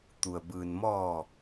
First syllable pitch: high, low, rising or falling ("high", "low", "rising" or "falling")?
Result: low